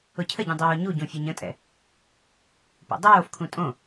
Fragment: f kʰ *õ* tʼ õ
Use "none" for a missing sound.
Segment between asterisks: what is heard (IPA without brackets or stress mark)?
ũ